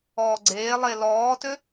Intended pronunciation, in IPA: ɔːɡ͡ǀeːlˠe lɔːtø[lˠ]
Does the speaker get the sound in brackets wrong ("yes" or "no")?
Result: yes